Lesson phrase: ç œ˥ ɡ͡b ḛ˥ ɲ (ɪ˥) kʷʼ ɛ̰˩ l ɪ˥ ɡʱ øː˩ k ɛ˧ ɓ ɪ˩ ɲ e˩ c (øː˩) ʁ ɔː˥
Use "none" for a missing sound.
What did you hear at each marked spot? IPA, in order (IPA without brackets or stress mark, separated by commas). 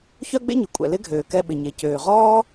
ɪ˩, øː˩